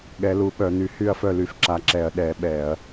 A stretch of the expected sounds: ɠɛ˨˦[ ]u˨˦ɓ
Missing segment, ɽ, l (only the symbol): l